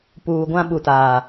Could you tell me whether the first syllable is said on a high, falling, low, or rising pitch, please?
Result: low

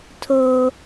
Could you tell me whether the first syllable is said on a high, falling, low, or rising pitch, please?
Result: low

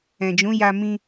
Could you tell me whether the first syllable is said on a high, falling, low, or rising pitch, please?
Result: low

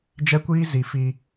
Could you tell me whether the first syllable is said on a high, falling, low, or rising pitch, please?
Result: high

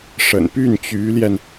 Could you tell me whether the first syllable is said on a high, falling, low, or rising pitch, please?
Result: low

